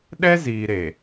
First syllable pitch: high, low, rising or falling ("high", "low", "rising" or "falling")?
high